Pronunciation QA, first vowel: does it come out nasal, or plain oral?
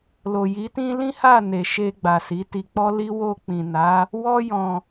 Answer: oral